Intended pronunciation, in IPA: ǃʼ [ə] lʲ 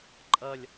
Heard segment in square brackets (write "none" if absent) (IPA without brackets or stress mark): ʌ